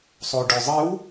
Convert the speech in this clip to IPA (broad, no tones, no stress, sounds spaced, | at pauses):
sˤ o ɖ ɵ zˤ ɨ w